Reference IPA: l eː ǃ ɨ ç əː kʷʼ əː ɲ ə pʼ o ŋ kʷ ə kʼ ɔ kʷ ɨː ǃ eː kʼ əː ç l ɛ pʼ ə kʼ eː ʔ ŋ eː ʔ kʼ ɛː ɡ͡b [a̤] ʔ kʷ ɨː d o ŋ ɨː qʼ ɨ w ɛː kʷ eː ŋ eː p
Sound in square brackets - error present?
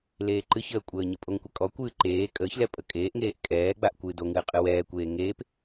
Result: yes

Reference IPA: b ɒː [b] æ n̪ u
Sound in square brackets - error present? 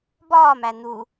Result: yes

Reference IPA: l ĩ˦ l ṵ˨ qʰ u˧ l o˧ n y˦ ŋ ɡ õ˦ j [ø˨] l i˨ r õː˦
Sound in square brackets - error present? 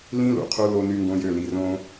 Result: yes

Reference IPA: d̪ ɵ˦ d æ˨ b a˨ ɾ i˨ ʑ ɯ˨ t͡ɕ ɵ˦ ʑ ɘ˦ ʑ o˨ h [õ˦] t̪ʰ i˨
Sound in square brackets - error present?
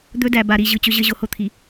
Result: yes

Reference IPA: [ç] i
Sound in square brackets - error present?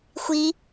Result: yes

